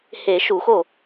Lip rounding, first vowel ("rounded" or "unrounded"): unrounded